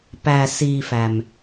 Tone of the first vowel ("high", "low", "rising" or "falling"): low